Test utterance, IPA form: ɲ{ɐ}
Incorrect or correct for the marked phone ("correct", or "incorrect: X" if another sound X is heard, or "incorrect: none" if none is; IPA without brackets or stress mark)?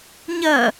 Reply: correct